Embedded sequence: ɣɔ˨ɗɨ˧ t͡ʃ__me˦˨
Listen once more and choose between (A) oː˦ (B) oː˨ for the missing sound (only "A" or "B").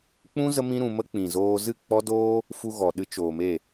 B